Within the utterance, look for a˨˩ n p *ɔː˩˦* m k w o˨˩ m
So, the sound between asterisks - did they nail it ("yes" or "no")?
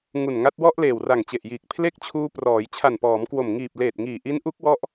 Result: yes